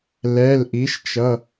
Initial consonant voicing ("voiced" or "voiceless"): voiced